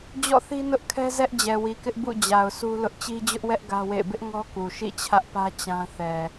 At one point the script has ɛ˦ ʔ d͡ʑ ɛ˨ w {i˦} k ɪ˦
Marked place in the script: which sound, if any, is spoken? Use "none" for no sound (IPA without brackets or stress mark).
i˨